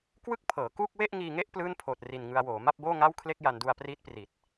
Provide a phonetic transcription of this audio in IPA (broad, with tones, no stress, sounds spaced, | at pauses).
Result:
k w ɯ˥˩ k̚ pʰ ɤː˩˦ k uː˥˩ k̚ w e˥˩ ʔ ŋ iː˧ ŋ e˥˩ ʔ p l ɯː˥˩ n pʰ oː˨˩ t̚ r i˨˩ n ŋ ɯ˧ a̯ w oː˩˦ m a˥˩ p̚ b oː˥˩ ŋ a˥˩ w kʰ l e˥˩ k̚ j a˧ n d u˧ a̯ p r iː˦˥ t̚ p r i˨˩ t̚